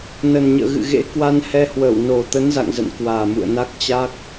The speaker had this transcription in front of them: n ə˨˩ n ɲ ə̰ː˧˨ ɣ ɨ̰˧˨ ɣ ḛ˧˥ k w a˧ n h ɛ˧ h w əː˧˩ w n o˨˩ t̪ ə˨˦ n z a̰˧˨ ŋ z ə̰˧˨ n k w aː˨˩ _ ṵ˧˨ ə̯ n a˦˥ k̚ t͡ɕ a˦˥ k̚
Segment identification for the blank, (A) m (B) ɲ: A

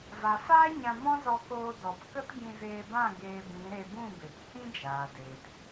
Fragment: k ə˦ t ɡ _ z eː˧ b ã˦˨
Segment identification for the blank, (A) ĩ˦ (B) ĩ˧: B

